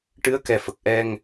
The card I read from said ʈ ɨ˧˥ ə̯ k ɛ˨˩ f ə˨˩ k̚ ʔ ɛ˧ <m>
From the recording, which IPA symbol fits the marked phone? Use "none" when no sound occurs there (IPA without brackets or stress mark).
ŋ